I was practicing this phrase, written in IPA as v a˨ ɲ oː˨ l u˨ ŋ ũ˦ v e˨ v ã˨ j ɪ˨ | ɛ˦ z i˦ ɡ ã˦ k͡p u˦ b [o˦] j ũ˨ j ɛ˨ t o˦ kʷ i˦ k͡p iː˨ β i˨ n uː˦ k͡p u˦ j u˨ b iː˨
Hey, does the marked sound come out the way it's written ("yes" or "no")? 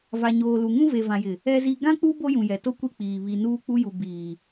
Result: yes